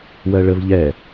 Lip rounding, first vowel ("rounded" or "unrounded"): unrounded